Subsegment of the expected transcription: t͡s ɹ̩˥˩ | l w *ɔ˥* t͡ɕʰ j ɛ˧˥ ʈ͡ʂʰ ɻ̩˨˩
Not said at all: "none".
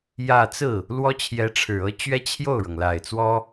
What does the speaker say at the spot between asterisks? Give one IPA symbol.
ɔ˥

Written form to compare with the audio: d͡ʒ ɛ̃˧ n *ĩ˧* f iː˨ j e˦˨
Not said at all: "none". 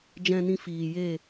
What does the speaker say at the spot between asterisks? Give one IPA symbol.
ĩ˧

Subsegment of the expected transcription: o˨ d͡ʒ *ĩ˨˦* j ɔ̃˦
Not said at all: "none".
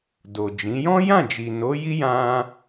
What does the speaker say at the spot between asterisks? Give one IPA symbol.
ĩ˨˦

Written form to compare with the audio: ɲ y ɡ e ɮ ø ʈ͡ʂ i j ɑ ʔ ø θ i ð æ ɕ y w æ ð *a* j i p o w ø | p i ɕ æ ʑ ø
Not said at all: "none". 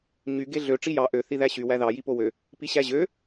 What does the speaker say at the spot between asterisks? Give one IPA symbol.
ɑ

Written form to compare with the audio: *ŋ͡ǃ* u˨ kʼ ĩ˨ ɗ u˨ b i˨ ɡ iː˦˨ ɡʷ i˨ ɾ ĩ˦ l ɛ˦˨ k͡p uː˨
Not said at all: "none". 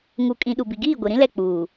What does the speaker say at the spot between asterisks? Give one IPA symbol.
ŋ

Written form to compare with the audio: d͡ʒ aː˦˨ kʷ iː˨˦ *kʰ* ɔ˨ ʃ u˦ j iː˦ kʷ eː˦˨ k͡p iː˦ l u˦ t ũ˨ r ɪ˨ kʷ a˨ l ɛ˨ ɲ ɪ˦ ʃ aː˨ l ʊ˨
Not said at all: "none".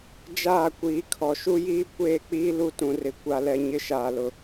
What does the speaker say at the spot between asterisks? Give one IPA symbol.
kʰ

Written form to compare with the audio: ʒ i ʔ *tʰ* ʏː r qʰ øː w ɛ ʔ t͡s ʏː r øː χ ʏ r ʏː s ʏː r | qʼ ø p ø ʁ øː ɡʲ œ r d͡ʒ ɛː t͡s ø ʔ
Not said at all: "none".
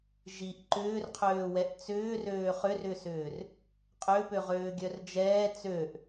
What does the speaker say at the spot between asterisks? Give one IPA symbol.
ǃ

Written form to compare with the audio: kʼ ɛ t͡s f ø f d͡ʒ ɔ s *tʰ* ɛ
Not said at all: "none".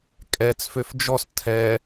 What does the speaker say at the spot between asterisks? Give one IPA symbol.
tʰ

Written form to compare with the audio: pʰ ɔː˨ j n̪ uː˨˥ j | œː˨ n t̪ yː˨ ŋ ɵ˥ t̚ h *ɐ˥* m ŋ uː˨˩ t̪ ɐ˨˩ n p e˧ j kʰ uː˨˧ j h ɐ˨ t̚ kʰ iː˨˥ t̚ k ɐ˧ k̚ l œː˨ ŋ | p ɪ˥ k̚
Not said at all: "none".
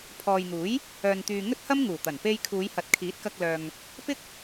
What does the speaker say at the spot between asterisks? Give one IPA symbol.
ɐ˥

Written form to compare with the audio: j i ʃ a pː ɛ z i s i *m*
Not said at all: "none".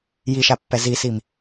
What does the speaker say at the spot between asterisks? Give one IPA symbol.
m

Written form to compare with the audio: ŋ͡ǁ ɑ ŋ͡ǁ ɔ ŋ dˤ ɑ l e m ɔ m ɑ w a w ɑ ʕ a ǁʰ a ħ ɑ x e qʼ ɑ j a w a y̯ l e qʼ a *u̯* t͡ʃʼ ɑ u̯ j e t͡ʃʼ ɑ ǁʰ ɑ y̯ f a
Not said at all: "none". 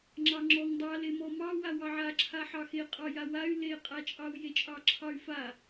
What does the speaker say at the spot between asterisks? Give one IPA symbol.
none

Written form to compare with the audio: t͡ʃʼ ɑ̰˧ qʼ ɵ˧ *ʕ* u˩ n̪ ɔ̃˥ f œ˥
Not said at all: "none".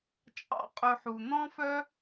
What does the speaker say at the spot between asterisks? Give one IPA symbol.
ħ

